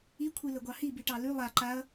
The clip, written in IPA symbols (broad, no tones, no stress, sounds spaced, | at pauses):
i kʷʰ i l ə ɡʷ ɑ h i b i ʈ ɑ l y lˠ a ǃ a ɐ̯